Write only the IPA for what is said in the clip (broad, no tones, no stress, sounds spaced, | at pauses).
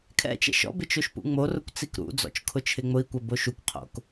kʰ ɛ̰ t͡ʃ ɛ̰ ʃ ɔ̰ b ɪ t͡ʃ o ʃ p ṵ ŋ͡m o r ʊ kʷ t͡s i k ɾ ṵ d͡z ɔ̰ t͡ʃ kʰ ʊ t͡ʃʰ ɪ ŋ͡m ʊ i̯ kʷ ɛ b o ʃ u kʷ qʰ o̰ k